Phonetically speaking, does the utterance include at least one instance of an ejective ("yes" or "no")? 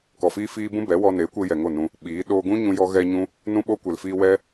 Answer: no